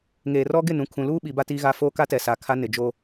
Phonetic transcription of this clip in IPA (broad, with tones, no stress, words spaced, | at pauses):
ŋeː˨rɔ˦ɡɪ˦˨ nũ˨ kʰũ˨luː˦ ɓi˨˦ba˦tiː˦ɣa˦ foː˦ka˦ tɛ˨sa˨kʰa˦ nɪ˨d͡ʒo˦